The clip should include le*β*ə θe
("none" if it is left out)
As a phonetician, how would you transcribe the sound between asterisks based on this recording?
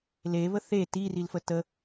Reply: β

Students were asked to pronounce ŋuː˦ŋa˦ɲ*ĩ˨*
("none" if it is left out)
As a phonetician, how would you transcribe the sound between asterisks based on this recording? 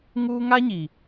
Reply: i˨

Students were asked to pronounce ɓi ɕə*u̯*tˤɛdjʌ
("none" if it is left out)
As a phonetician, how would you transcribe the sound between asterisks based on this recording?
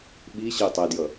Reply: y̯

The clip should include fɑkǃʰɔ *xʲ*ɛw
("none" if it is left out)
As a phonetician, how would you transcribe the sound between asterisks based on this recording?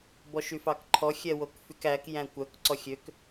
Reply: xʲ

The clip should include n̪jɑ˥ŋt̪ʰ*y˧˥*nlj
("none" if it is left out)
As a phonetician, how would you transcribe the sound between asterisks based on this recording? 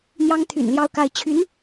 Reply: y̰˨˩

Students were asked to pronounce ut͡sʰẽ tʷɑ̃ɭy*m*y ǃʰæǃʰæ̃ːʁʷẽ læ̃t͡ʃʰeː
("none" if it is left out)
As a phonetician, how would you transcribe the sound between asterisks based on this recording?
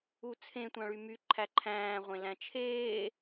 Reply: m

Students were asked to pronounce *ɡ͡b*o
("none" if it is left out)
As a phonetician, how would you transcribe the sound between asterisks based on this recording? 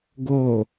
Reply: ɡ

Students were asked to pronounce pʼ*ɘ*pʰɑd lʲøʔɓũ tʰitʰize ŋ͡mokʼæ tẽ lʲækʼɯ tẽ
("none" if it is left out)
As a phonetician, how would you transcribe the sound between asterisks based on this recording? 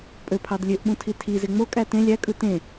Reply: ø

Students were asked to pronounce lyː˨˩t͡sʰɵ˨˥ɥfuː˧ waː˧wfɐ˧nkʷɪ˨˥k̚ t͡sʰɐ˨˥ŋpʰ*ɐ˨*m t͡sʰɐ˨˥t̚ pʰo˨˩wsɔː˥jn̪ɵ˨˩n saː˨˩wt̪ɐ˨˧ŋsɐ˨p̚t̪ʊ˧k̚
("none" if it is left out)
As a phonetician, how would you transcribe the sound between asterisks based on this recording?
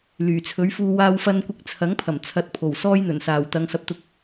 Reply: ɐ˨˩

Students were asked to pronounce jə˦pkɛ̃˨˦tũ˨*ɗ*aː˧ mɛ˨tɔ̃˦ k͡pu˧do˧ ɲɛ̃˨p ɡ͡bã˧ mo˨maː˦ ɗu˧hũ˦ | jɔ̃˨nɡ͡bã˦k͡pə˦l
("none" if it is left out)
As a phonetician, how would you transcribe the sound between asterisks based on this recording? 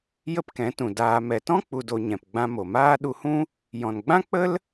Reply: d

